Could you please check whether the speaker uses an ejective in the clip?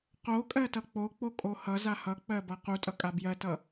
yes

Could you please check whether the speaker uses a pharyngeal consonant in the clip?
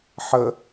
yes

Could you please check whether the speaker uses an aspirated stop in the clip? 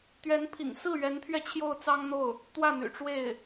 yes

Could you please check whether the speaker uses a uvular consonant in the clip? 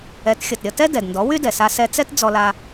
no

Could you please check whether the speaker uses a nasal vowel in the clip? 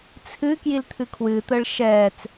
no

